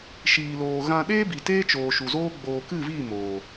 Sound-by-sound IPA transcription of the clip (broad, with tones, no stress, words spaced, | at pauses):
ʃiː˧loː˧ ɣã˧ɗeː˦bi˨ teː˦t͡ʃoː˨ ʃu˨zoː˦ ɡ͡boː˨kɨ˦˨viː˦˨ moː˨